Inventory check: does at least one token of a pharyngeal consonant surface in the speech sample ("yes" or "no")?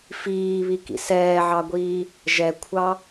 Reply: yes